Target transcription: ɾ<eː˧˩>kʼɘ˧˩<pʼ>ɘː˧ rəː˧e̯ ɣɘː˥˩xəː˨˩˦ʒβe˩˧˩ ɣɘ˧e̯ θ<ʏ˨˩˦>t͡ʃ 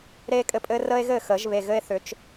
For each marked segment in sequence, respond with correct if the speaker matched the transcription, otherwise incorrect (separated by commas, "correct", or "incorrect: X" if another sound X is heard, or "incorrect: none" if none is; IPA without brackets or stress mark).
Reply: incorrect: eː˧, correct, correct